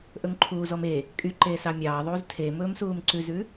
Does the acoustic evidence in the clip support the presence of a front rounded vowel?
yes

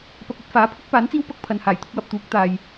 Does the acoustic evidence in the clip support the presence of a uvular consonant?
no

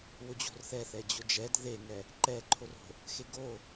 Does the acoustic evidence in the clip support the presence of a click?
yes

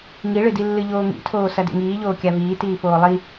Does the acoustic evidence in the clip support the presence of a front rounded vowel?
no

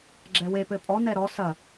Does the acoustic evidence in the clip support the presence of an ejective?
yes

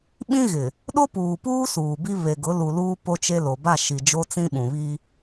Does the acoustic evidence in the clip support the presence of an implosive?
yes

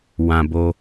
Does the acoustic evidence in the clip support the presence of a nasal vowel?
yes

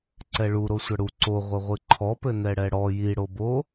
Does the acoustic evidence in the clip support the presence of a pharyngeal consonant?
no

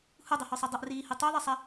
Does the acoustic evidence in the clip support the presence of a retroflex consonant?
no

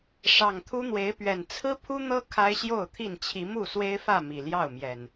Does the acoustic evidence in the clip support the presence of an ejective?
no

